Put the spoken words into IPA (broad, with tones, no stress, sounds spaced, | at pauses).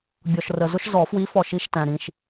bʲ ɔ˨ ʃ r ə˨ z ʊ˦ ʃ z ɔ˨˩˦ f w i˨˥ f ɔ˨ ʃ i˨˥ ʃ t æ̃˨ ɾ ĩ˨ ʃ